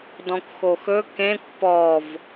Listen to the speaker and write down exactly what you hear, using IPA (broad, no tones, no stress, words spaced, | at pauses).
dɔ̃kʷxoxɵ kẽkʷ pɔv